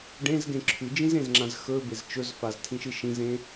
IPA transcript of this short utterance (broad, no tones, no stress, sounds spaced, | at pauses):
ɖ ẽ z ɡ ẽ ǁʰ ʉ d͡ʒ ĩ z ẽ z ŋ͡ǁ ã z x ɵ b e z t͡ʃ ɵ z f a z tʰ ĩ ʃ ɨ ʃ ĩ z ẽ